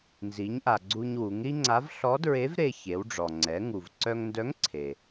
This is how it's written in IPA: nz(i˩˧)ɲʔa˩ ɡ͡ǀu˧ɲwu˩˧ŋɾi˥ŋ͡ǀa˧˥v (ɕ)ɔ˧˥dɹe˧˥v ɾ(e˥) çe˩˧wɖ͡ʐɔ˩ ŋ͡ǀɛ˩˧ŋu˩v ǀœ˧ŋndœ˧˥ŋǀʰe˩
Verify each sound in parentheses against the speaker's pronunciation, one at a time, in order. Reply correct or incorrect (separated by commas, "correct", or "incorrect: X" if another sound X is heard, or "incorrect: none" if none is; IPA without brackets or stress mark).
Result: correct, incorrect: ɬ, incorrect: e˧